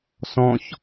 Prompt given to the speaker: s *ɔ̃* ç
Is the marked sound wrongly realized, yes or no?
no